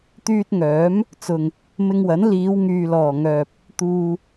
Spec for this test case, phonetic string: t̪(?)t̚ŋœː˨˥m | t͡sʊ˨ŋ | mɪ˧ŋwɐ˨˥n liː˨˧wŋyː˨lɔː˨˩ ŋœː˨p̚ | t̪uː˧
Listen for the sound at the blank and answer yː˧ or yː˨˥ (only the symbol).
yː˧